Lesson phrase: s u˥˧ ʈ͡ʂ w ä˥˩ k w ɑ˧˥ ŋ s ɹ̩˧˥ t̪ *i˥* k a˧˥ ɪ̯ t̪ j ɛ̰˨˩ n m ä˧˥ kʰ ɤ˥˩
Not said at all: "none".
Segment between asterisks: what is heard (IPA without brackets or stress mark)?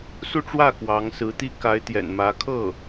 i˥